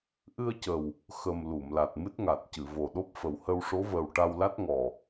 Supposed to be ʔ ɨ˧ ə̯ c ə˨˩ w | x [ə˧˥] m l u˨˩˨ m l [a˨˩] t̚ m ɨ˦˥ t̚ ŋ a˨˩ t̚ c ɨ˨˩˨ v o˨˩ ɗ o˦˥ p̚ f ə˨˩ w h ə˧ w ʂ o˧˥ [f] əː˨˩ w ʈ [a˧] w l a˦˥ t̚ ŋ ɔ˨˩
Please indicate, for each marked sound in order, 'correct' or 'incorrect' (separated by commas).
incorrect, correct, incorrect, correct